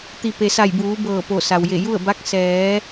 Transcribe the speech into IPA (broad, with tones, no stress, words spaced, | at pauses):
t̪i˩ pe˩sa˧˩jbuː˩˧ bɤː˧˩ po˧˩sa˩wje˧˩ ju˥˨ə̯ba˧˥k̚ sɛː˩˧